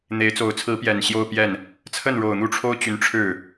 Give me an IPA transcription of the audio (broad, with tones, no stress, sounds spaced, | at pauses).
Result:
n̪ e˧˥ ɪ̯ t͡s o˧˥ ʊ̯ t͡sʰ ɹ̩˧˥ p j ɛ˨˩ n ɕ j o˥˧ ʊ̯ p j ɛ˥˩ n | t͡sʰ ə˥˩ n ɻ o˨˩ ʊ̯ n̪ u˥˩ ʈ͡ʂʰ o˥ ʊ̯ t͡ɕ y˧˥ n ʈ͡ʂʰ ɻ̩˥˩